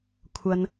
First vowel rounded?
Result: no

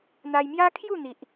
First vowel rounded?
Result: no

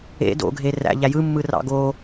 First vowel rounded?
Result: no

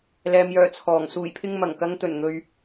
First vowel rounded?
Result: no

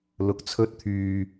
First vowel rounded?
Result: yes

